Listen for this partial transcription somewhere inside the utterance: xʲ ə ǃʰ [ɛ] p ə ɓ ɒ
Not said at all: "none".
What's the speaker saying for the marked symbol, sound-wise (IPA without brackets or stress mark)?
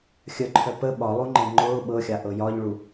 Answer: œ